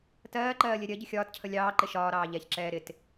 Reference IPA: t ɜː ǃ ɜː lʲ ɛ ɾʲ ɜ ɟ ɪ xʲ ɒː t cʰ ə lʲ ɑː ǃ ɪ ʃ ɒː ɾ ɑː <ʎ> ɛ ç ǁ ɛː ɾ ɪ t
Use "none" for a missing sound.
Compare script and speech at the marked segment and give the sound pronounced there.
ʎ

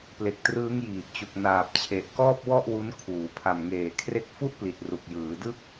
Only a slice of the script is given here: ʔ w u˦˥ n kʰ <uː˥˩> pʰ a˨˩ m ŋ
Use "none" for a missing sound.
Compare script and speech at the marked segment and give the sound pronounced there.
uː˩˦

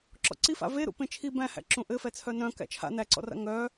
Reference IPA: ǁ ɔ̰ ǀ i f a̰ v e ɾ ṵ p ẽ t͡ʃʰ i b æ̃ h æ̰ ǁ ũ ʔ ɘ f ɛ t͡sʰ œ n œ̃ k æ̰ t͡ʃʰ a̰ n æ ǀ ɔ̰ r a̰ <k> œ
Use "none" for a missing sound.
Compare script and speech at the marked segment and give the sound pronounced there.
ŋ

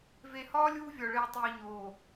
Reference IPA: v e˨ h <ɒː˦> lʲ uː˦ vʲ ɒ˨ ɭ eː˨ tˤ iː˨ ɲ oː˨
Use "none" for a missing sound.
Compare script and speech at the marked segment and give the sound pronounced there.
ɒː˦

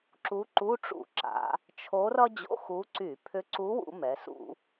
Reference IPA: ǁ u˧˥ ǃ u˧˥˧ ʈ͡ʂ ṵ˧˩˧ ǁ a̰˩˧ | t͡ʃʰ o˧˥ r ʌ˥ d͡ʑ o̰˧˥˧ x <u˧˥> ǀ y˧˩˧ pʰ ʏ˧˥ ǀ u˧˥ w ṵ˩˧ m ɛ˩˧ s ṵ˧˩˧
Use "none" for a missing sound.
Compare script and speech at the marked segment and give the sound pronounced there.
u˧˥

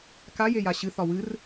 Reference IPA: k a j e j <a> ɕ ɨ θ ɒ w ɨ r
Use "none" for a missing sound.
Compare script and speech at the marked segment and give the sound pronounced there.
a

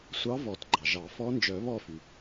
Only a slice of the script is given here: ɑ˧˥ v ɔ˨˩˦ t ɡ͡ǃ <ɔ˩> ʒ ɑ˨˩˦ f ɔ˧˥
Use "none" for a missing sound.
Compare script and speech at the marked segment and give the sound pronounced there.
ɑ˩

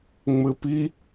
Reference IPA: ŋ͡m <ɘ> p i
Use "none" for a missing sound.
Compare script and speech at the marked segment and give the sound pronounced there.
ɘ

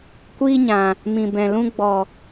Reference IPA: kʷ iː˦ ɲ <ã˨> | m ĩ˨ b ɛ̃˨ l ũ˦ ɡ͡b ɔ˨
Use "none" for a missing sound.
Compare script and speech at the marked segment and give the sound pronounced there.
ã˨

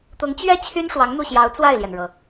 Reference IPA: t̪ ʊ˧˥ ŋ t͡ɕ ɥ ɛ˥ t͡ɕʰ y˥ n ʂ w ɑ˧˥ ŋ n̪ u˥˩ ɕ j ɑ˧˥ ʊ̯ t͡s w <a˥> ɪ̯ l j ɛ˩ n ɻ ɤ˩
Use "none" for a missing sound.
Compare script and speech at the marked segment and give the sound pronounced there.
a˥˩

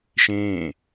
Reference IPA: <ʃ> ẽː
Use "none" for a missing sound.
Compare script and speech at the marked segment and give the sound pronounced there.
ʃ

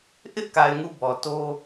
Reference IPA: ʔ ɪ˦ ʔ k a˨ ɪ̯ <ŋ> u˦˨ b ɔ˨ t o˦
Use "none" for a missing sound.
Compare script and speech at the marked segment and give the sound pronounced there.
ŋ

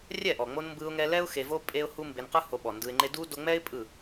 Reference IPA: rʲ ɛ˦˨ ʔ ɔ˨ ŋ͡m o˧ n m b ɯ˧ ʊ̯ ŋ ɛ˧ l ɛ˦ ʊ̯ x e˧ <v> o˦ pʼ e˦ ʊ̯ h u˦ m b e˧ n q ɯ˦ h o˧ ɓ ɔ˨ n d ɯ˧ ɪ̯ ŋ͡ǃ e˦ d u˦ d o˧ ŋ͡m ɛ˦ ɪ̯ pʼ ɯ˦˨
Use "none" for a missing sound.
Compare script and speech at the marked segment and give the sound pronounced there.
v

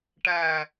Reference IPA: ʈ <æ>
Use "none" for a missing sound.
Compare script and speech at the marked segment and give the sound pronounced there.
æ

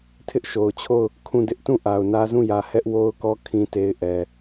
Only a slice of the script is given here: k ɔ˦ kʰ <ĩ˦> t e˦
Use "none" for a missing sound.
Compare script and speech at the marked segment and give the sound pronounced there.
ĩ˦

